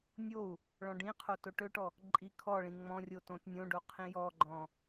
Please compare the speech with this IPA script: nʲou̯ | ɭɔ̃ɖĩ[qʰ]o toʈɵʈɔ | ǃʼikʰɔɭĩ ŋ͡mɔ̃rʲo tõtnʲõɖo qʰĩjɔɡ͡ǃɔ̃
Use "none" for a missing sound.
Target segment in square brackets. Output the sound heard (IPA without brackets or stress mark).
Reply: qʰ